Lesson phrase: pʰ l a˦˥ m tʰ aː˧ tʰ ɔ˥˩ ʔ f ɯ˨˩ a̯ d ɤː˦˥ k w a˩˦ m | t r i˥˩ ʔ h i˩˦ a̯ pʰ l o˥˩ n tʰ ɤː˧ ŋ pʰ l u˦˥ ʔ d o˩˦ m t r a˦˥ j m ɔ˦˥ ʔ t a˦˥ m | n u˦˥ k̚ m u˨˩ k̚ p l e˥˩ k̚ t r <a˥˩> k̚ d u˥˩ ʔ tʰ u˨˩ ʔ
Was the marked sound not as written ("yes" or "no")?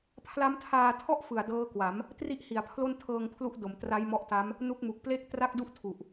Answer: no